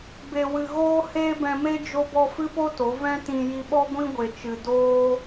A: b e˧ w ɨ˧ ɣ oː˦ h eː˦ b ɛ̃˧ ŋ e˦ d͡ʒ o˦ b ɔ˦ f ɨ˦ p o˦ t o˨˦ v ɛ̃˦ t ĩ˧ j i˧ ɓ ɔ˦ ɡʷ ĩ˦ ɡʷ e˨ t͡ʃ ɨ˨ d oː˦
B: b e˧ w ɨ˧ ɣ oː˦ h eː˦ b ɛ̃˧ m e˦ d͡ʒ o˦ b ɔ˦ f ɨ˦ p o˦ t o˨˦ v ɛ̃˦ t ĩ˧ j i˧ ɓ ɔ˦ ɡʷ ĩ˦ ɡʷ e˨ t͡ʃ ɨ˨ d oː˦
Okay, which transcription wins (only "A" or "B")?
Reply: B